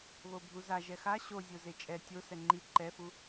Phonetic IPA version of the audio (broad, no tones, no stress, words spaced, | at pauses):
βobʱuza ʒɛxa ɕozʲo zet͡ʃʼɛ tʲo sɛŋ͡ǃi ǃɛfu